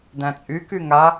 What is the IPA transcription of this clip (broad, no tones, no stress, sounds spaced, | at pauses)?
d æ̃ t͡sʼ y k y ŋ a